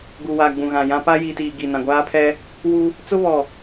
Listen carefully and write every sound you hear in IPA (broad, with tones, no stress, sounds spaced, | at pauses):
ɡ u˨ w aː˨ ɡ͡b ũ˨ ɣ ã˨ j ã˦ p a˦ j i˨ t iː˨ ɡ i˨ n ã˨ ɡʷ aː˦ pʰ ɛ˦ | w u˦ | t͡s ʊ˦ β ɔ˨